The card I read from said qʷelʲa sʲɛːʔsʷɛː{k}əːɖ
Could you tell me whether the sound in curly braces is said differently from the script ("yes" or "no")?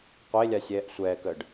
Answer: no